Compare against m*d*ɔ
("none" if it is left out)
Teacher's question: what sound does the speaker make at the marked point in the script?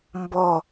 b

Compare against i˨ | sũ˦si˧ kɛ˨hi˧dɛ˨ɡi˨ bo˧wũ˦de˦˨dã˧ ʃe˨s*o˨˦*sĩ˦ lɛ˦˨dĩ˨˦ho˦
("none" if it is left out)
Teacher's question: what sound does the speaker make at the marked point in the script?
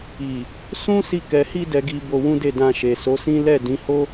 o˨˦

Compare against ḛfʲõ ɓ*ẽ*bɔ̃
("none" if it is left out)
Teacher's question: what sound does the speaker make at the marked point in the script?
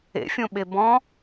e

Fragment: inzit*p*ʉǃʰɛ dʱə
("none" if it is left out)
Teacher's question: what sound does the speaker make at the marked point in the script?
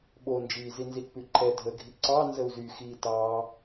p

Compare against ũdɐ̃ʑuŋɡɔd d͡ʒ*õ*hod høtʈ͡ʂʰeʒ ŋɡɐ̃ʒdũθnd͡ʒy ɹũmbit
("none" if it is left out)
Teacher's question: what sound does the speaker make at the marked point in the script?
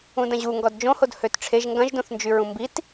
õ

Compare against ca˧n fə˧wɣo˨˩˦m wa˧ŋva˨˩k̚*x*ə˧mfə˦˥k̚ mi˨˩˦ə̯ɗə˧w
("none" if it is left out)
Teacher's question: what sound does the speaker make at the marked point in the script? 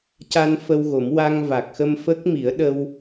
x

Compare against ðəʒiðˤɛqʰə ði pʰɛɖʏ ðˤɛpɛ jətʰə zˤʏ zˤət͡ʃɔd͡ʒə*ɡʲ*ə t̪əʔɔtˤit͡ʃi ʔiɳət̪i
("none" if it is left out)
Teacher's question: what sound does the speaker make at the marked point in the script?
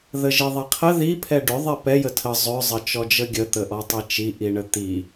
ɡʲ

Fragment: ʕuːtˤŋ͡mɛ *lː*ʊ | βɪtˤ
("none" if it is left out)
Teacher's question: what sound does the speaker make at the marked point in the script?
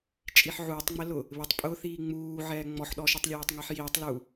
l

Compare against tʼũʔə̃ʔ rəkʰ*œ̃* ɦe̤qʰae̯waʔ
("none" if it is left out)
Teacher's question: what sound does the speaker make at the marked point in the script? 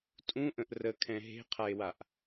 ɛ̃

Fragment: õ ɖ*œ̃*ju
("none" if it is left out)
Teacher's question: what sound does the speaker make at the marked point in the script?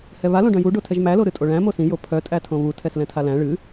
œ̃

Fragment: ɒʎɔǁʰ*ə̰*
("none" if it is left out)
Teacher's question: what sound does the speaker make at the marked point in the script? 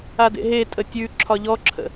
ə̰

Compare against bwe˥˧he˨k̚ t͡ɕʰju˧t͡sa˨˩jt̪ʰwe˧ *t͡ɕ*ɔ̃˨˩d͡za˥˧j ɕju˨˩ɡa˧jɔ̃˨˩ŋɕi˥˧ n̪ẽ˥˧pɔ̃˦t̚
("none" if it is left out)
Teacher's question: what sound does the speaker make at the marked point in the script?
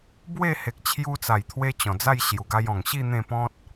t͡ɕ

